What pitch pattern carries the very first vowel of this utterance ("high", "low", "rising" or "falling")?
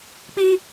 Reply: high